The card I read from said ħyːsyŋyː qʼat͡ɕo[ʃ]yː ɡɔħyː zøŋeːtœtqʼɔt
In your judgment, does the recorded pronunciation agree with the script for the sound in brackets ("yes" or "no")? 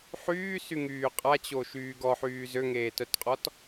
yes